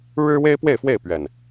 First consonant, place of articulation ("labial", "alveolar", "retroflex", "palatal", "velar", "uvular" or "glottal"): retroflex